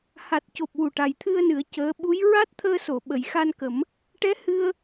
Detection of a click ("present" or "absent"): absent